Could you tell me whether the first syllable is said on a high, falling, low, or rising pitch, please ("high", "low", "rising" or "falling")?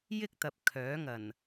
high